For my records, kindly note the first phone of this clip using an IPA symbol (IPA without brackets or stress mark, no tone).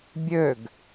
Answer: bʲ